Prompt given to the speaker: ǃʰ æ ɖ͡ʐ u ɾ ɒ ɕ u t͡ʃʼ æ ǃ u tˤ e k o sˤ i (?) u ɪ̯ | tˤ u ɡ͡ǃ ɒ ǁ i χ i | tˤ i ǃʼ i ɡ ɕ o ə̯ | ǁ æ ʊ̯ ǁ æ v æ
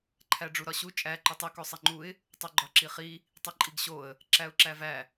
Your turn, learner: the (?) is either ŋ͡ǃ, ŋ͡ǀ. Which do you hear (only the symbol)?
ŋ͡ǃ